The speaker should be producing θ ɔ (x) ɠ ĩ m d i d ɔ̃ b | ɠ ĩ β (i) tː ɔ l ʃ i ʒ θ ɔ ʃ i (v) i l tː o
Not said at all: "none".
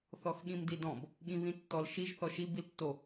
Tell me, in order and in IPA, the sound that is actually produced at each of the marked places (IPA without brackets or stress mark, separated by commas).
x, ĩ, b